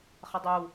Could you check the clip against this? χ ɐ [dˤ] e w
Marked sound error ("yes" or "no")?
no